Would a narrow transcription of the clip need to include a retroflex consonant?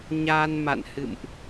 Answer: no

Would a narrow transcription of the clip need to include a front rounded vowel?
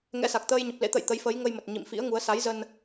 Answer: no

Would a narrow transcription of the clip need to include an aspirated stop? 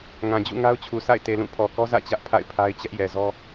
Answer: yes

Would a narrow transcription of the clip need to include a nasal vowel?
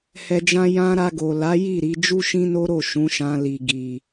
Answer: yes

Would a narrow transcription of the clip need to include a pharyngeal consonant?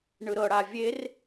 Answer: no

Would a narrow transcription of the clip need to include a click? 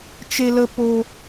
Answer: no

